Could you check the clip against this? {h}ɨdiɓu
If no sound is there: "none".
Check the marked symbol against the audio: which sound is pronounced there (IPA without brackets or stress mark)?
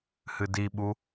h